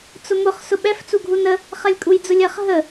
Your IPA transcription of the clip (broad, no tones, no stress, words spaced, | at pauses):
t͡sʊmʊχ sʊɓɛf t͡suɡʱunə | χɐlʲkʼujd͡zʊlʲɐχ ɦə